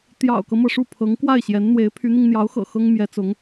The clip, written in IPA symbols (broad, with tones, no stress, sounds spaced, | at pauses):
t̪ j ɑ̰˨˩ ʊ̯ k ɤ˦ m ɤ˩ ʂ u˥˩ pʰ ɤ˧˥ ŋ k w a˥˩ ɪ̯ ɕ j ɛ˧˥ n n̪ w e˧˥ ɪ̯ pʰ y˧˥ n̪ i˧ ŋ n̪ j ɑ˧˥ ʊ̯ x ɤ̰˨˩ x ɤ˥ ŋ m j ɛ˧˥ t͡s ʊ˧˥ ŋ